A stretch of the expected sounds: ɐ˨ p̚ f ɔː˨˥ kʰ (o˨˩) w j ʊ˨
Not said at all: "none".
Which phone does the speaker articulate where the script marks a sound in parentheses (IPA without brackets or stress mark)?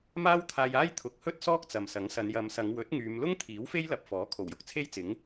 o˨˩